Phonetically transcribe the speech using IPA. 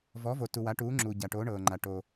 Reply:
vɔː˨˥vo˨tu˨ wa˨˥ʈuː˨˥ŋ͡ǁuː˨ ɟa˨ʈo˨˥ ɳɤː˨ŋ͡ǃa˨ ʈo˨

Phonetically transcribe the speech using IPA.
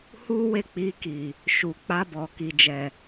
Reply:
hu˦we˦˨k͡pi˧ki˨ | ʃu˨ k͡pa˧bɔ˨ki˨d͡ʒɛ˨

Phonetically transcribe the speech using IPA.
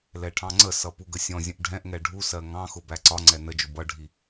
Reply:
lɛʈʰɑ̃ŋ͡ǀəsʌ puɡəsʲɔ̃zʲə̃ʔ ɖʱɛ̃ʔŋɛ ɖʱusɜ ŋɑ̃xʊ bæǀɒŋ͡ǀɛ nəd͡ʒʊ bʌɖʱi

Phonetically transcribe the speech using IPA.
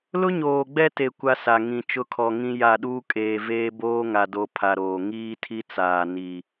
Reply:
lʊ˦ɲoː˨ɡ͡bɛ˦te˨ kʷa˦sa˨ŋĩ˨ t͡ʃʊ˦kʰɔ˨ŋĩ˦ ja˦˨ɗuː˦kʼeː˨veː˦ boː˦ŋa˨ do˦pʰa˨ɾoː˨ ŋiː˦tʰi˦t͡saː˨ ni˨

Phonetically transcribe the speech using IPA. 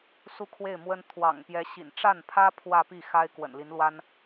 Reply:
su˥˧kʰwe˥˩ɪ̯mwə˥n t̪ʰwɑ̰˨˩ŋpjɛ˧˥ ɕḭ˨˩nʈ͡ʂa˥˩npʰä˥ pʰwä˥˧pi˥˩ xa˥ɪ̯ kwə̰˨˩nli˧˥nlwa˥n

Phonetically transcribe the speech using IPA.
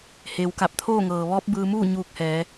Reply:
heː˩˧wka˧˩p̚t̪ʰoː˥˨ŋɤː˩ ʋɔː˧˥p̚bɯː˧muː˥˨ ɲuː˧k̚hɛː˩˧

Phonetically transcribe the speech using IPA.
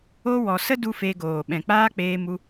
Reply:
o˧ wɔ˨sə˦ du˦fe˧ɡoː˨ ɓɛ̃˨k͡paː˦ k͡peː˦mu˦

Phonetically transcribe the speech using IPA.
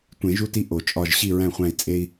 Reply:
tʷẽ˨˩˦ʒu˦ti˦ ʔo˨˩˦t͡ʃʼɒ˦˨ʒ ɕi˦˨ɹæ̃˦˨χʷæ̃˦˨i̯t͡sʼe˦i̯

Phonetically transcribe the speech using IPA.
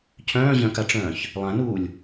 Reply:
cʰœ̃ːʑœ̃kaʈ͡ʂœ̃ːç | lˠãnuːlʲ

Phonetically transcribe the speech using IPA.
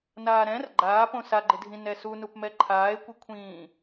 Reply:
naːɾɛ̃r ɡ͡ǃaː põsaɡ͡ǃɪdʱĩ nɛsunupmɛ ǃʰaːe̯kʷɪkʷʰĩː

